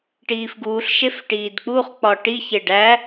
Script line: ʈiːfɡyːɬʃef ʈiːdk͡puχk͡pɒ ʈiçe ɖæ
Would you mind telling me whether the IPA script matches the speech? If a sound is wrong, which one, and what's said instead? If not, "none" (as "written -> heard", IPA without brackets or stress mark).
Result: yː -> uː